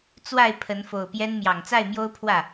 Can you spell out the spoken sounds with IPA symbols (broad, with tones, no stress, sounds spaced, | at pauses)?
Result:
t͡s w a˥˨ ɪ̯ pʰ ə˨˦ n f o˨˩ ʊ̯ p j ɛ˦ n m j ɑ˨˩ ŋ t͡s a˥˨ ɪ̯ m j o˦ ʊ̯ pʰ w ä˥˨